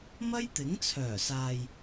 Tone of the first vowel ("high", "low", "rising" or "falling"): high